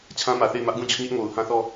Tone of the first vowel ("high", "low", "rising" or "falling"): high